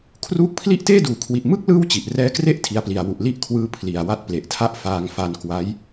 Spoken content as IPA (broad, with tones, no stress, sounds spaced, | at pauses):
kʰ r uː˦˥ k̚ pʰ l i˥˩ ʔ t eː˥˩ d uː˩˦ kʰ w i˨˩ ʔ m ɯ˥˩ k̚ l ɯː˥˩ w t͡ɕ i˨˩ ʔ r ɛː˦˥ k r e˥˩ ʔ tʰ i˦˥ a̯ p l i˧ a̯ w u˨˩ ʔ l i˥˩ ʔ kʰ w ɯː˦˥ pʰ l i˨˩ a̯ w a˥˩ t̚ p l e˨˩ ʔ tʰ a˥˩ ʔ f aː˧ ŋ f a˧ n k w a˦˥ j